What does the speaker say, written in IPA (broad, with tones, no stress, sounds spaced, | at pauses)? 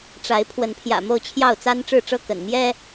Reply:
ʈ͡ʂ a˨˦ ɪ̯ pʰ w ə˨˦ n pʰ j ä̰˨˩ m o˥˨ ʊ̯ t͡ɕʰ j ɑ˥˨ ʊ̯ t͡s a˦ n ʈ͡ʂ ɻ̩˥˨ ʈ͡ʂ ɤ˥˨ k ə̰˨˩ n m j ɛ˦